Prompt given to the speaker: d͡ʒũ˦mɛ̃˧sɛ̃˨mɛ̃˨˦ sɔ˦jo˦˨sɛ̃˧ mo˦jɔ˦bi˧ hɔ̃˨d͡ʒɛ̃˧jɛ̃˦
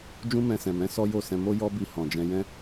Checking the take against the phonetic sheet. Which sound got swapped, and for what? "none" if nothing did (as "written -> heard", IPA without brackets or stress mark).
none